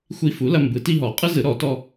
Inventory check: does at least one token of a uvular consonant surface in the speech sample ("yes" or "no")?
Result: yes